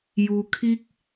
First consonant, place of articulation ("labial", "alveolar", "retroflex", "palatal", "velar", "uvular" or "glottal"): palatal